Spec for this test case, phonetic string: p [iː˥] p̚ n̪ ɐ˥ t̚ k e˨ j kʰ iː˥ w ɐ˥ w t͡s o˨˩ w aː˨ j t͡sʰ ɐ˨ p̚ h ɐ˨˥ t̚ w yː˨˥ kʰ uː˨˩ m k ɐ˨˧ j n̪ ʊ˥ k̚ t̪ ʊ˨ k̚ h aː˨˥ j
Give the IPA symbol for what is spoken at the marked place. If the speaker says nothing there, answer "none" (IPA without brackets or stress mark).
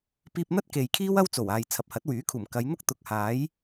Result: iː˧